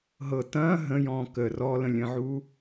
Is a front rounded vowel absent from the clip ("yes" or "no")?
yes